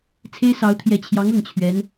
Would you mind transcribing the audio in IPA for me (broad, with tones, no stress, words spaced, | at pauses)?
t͡sʰe˥ɪ̯sɑ˧˥ʊ̯ t̪ʰjɛ˨˩t͡ɕʰjɑ˧˥ŋ ɤ˥˩ŋt͡ɕʰɥɛ˧˥n